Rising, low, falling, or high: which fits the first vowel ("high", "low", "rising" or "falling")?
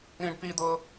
high